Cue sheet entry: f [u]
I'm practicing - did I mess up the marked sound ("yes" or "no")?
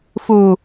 no